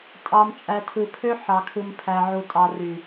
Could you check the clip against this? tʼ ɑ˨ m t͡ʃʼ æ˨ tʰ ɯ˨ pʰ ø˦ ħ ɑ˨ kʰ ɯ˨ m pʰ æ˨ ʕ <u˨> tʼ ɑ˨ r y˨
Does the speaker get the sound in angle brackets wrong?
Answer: no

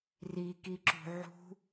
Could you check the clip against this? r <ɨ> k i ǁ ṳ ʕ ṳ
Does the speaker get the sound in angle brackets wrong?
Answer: yes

